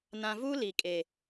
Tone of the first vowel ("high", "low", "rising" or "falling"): low